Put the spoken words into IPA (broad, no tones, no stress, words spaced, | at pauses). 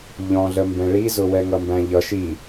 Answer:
ʎɔ̃ɮəmbɛ̃ ɭizʊwɛ ŋʌmbæ̃ʎʌʃ i